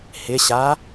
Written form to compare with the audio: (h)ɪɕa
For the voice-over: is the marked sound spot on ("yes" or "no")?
yes